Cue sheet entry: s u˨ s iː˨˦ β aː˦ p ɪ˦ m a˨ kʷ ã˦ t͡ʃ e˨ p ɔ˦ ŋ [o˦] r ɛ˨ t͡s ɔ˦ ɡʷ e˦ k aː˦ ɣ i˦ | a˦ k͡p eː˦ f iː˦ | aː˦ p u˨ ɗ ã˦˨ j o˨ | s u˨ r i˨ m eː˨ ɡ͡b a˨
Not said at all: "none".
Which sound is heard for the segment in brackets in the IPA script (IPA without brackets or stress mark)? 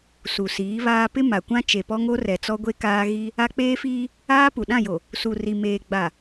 o˦